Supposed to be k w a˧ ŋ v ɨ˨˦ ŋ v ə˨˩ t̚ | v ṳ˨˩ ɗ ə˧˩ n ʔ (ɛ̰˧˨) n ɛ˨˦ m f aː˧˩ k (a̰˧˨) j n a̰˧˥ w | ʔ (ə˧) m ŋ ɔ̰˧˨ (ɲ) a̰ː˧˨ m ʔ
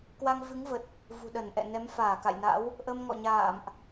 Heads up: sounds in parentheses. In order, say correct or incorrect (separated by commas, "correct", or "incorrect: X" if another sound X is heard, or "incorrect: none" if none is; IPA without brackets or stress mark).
correct, correct, correct, correct